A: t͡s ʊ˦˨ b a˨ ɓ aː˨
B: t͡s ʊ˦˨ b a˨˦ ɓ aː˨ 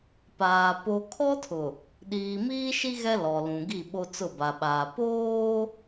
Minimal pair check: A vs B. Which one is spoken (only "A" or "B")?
A